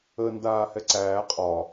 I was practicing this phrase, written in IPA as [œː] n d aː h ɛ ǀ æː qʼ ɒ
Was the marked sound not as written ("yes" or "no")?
yes